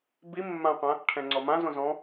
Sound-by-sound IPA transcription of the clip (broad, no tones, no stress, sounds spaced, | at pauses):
b i mː ã qʷ ã | ʈʰ ɛ̃ ŋ͡ǀ ɔ m ã z õ z ɔ̃